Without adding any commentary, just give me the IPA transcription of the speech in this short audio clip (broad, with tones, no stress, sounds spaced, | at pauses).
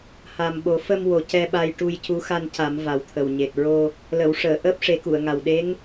h a˨˩ m ɓ o˨˩˦ f ə˧ m w o˨˩ c ɛ˧ ɓ a˧ j ʈ u˧ j c u˧˥ x a˧ n c a˨˩˦ m v a˨˩ w t̪ʰ ə˨˩ w ɲ e˨˩ t̚ ɹ o˧ | l ə˨˩˨ w ʂ əː˨˩˨ ʔ əː˦˥ p̚ ʂ e˨˩˦ k u˨˩˨ ə̯ ŋ a˨˩ w ɗ e˧˥ ŋ